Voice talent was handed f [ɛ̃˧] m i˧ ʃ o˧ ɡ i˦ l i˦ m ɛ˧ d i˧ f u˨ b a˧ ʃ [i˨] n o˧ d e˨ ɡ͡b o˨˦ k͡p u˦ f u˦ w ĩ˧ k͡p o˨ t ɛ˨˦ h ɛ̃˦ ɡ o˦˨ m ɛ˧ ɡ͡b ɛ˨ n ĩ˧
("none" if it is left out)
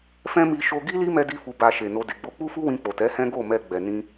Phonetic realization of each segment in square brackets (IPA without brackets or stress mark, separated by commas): ɛ̃˦, e˨